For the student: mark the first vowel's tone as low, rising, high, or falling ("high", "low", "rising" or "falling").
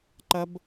high